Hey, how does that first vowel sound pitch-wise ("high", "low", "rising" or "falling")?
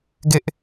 high